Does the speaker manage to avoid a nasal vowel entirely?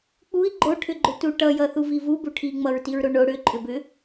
yes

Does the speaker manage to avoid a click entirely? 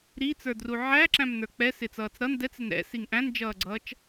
no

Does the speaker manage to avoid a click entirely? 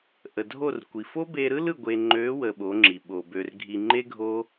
no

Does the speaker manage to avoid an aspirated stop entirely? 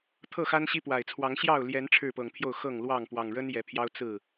no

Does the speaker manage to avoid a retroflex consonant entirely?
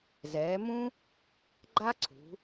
yes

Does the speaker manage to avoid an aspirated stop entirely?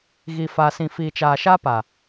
yes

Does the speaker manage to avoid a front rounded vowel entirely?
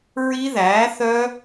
no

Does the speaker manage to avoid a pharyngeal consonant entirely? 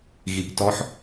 no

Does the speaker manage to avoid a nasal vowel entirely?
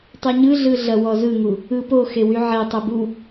yes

